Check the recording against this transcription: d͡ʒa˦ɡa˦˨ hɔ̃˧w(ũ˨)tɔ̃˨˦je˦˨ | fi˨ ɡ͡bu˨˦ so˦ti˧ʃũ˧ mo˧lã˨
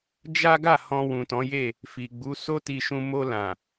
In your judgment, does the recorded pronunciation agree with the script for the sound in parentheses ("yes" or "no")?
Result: yes